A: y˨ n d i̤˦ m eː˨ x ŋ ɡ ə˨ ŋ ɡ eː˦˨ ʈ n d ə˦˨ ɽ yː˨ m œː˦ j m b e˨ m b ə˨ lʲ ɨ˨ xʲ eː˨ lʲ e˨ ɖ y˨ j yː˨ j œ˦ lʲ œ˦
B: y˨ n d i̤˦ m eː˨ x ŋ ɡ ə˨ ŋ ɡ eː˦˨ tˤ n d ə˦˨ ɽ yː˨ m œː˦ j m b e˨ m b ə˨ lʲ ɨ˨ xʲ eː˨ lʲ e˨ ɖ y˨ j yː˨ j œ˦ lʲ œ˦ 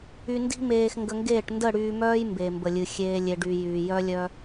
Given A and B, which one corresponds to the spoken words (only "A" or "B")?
A